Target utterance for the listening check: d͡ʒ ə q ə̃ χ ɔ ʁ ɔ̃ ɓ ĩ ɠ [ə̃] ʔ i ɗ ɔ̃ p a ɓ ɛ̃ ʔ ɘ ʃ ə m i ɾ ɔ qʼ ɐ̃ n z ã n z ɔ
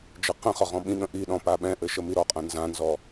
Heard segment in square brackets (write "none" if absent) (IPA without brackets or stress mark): ə̃